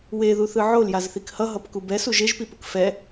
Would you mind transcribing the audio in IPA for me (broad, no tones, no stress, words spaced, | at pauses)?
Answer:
weðuθɯ ʕoljazθik hʌɦʌpku bɛsuʒ eʒpipɯk fɛ